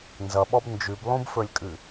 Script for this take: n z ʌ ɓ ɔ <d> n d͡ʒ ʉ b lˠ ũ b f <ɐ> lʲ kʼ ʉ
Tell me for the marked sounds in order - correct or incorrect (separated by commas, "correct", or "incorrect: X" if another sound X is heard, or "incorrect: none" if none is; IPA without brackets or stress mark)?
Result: incorrect: b, incorrect: ə˞